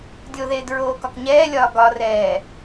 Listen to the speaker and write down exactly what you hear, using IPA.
dʲoðeːdɹoːkɒk ɲɛːlʲɒː ɡɒrɛː

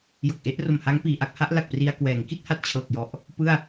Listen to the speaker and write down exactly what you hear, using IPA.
jo˨˩k̚ʔe˦˥ʔro˨˩mha˦˥ŋ piː˧ʔa˦˥k̚ ha˦˥ʔla˨˩k̚pri˧a̯ kwɛː˩˦ŋki˥˩t̚ ha˥˩t̚t͡ɕʰɤː˨˩k̚jɔ˨˩ʔ | pɯ˥˩a̯

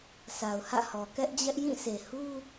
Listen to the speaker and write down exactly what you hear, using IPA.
sʰa˨ʊ̯hä̰˦˨hɔ˨ kɛ˦ʔd͡ʑɛ˦ʔ jĩ˦˨sʰe˨hu˦

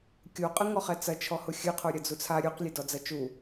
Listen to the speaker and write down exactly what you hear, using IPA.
kʲoqʼɨŋɔχɛ t͡sɐ t͡ʃʰɔhʊxʲɨqʰo ɾʲɐd͡zut͡sʰa ɾʲuq lʲedɔd͡zɐt͡ʃu

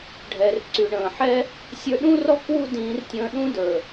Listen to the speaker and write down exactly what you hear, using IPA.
ɖʱɛ˨rǀy˨ɳə̃ː˨ħɛ˦ | sʲə˞˧ɗũ˦rɔ˦ kwu˦dĩː˨˦rtʲə̃ː˧ ɗũ˦də˞˨

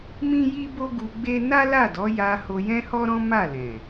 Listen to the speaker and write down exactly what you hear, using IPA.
mĩ˦ji˦bo˦ ɡu˧ɡ͡be˦ na˦la˦˨dɔ˨˦ja˧ ho˧jɛ̃˦hɔ˦ɾɔ̃˦ ma˦˨lɛ̃˨

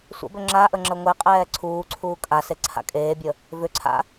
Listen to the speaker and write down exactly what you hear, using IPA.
sʷə̰bʏ ŋ͡ǁaʔə ŋ͡ǁəŋʷeqʼɛː ǀʰuːǀʰuː kʼase ǀʰa̰kʼeːbʲə | vʏǀʰa̰

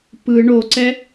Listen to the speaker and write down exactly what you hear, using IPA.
pɯ ɳoǀɛ

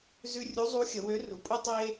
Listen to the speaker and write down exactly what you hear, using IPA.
zʉ˧ rʲu˧˥zˤu˧˥xʲə˩˧ wø˧˥ru˩˧ pʼu˥tˤe˥

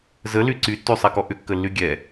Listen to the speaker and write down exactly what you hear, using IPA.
zəly ǀytːysˤɛkɔ ʔʏkːəlːy ɡʲɛ

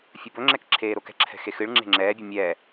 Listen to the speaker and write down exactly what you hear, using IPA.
fʲɐbɵŋ͡ǁɛk ǁʰeːɾokɛ̤ǁʰɛ̤ xexɨɭŋ͡ǁe̤ ŋ͡ǁɛːbʲɨ mʲɛː

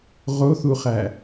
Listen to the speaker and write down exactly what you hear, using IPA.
ʁoθuχæ

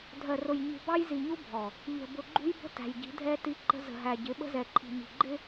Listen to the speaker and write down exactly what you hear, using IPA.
dʱɜ˨rʊ˨j ɲṳ˨bɑ˦jzi˨ɲu˦ bʱɔ˨ | ʎə̤˨bʊ˨ɡ͡ǃṳ˦jbə̤˦ tæ̤˨jɟi̤˨˦dʱɛ˦ ti˦ǃə̤˦ zə̤˨ɦæ˨ɟɪ˨˦ ɓə̤˦zɛ˨ǃʰi̤˨ mi̤˨ɡ͡ǃɪ˦

